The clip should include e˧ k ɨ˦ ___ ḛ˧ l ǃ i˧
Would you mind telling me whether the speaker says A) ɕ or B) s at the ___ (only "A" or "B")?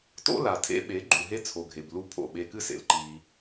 B